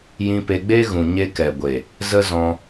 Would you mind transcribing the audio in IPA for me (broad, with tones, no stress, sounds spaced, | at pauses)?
j ĩ˧ p e˧ ɡ͡b e˦ ɣ ũ˨ ɲ e˧ k ɛ˨ ɡʷ e˨ | z ə˦ z ɔ̃˧